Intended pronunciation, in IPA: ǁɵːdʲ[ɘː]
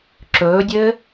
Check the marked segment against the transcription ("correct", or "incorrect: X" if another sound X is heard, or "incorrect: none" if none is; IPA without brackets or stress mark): correct